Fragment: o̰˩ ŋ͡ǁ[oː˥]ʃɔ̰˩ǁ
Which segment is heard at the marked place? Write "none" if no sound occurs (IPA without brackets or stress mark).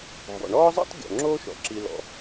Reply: oː˥